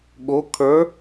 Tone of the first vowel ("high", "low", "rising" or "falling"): rising